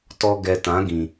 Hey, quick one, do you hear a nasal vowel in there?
yes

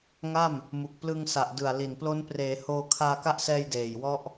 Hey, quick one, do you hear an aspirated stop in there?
yes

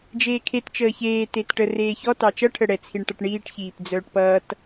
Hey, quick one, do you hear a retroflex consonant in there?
yes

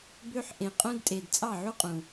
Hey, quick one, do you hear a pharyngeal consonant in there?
yes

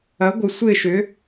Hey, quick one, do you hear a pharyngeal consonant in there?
no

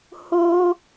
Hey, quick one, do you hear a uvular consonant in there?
no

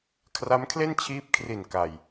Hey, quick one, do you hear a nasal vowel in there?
no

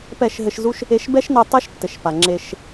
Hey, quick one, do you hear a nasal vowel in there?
no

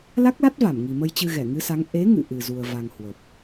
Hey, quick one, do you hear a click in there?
no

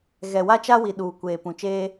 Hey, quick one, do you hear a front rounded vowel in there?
no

